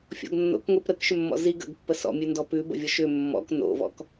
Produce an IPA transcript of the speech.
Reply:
fʲ ɔ̰ ɡ nː o̰ k ŋʷ i p ɾ ə k ʃ ʏ mː ɔ̰ z i ɡ ə̰ ɡ pː ə s ɔ̰ mʲ ʉ n d ɔ p ʉ b ə̰ vʲ ɔ ʃ ʏ mː ɔ̰ k n o̰ v ɔ̰ k

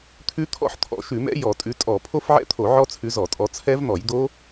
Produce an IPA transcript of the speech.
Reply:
t̪ʰ ʉ˦˥ t̪ʰ ɔ̰˦˥ ħ t̪ʰ ɔ̰˧˩˧ ʃ ʉ˧˩˧ m ɛ̰˦˥ j ɔ˧˩˧ tʼ ʉ˨˦ tʼ ɔ˧˩˧ pʰ o˦˥ f ʕ ɛ̰˦˥ t̪ʰ o˧˩˧ ʕ ɔ˦˥ t͡sʰ ʉ˨˦ z ɔ˧˩˧ tʼ ɔ˨˦ t͡sʰ ɛ˦˥ v n̪ ɔ˧˩˧ j d̪ o˦˥

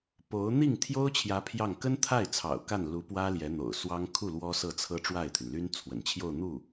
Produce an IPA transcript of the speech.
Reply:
p o˧˥ ʊ̯ n̪ i˥˩ ŋ t̪ʰ j o˥ ʊ̯ t͡ɕʰ j ä˧˥ pʰ j ɑ˥˩ ŋ k ə˥ n t̪ʰ a˥˩ ɪ̯ t͡sʰ ɑ̰˨˩ ʊ̯ k a˥˩ n l u˧˥ p w ä˥ l j ɛ˧˥ n̪ o̰˨˩ ʊ̯ s w ɑ˥ ŋ kʰ u˥˩ l w ɔ˥ s ɤ˥˩ t͡sʰ ɤ˥ ʈ͡ʂ w a˥˩ ɪ̯ t̪ʰ y˩ n l y˥ n t͡sʰ w ə̰˨˩ n t͡ɕʰ j o˥˧ ʊ̯ n̪ u˥˩

